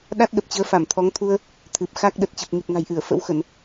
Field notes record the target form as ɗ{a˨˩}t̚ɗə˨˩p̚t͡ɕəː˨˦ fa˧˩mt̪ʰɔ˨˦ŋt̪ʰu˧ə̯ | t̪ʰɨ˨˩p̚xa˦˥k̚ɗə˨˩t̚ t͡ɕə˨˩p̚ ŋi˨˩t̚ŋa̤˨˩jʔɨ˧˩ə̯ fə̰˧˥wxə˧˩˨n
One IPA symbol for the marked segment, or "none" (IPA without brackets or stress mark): a˦˥